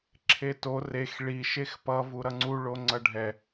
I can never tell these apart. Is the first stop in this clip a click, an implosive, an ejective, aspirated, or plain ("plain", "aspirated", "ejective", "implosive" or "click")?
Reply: click